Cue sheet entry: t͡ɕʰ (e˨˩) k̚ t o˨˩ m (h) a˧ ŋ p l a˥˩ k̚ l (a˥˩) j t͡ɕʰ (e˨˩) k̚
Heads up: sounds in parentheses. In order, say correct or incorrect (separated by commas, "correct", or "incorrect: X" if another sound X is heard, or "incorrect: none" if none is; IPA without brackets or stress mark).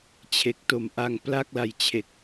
correct, incorrect: ʔ, incorrect: a˧, correct